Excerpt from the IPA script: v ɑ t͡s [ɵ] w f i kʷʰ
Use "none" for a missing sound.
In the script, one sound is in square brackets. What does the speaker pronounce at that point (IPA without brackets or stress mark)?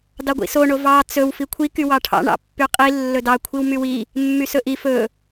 ɵ